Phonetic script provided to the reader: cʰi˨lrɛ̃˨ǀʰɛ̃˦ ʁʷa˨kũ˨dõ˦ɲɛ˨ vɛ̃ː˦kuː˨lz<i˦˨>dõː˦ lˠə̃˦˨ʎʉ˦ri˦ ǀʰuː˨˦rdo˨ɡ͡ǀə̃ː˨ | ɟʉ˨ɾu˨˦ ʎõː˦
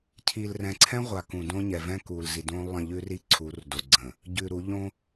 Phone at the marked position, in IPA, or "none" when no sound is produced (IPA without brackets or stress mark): i˨